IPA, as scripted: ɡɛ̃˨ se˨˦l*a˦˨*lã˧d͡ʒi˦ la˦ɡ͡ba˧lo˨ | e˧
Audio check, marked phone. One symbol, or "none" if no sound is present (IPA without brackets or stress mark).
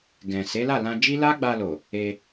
a˦˨